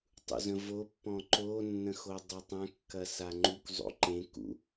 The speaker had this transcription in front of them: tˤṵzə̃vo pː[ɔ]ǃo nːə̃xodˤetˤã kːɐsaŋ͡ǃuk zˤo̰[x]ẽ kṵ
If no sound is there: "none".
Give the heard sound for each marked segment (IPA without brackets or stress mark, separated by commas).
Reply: ɔ̃, ǃ